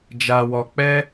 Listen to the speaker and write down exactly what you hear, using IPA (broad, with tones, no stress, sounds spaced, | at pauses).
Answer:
d͡ʒ a˧ w ɔ˧ k͡p ɛ˦